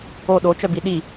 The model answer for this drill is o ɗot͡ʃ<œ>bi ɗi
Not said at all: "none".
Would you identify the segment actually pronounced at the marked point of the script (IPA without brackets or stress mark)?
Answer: œ